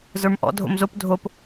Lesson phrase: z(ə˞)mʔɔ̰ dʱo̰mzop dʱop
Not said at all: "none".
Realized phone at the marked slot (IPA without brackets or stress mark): ə˞